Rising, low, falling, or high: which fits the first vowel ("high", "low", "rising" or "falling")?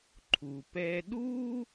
low